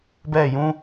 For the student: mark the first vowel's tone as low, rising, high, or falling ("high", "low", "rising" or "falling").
falling